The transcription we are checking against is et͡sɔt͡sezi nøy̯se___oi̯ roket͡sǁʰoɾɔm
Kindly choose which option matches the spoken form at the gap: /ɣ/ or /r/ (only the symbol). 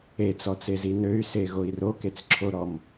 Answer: ɣ